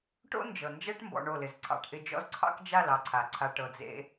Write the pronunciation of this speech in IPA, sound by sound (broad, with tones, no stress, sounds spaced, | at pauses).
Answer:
ʈ o̰˦ n d͡ʒ ɤ˨ n d͡ʒ ɛ˦ ʈ m b ɔ̰˧ ɳ o˦˨ l ɪ˨ z ǀʰ ɑ̰˧ ʈ ʔ ɪ˧ d͡ʒ ɔ̰˦ z ǀʰ ɑ̰˦ k d͡ʒ a˦˨ l ɑ˧ ǀʰ a˨ ǀʰ a˧ ʈ ɤ˧ d͡z ḛ˦